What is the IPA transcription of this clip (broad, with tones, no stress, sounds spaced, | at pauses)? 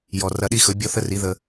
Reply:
j ɔ˨ r ɐ˧ ɗ i˦ x ɵ˨˦ bʲ ɔ˦ θ ə˦ r i˨˦ ð ə˧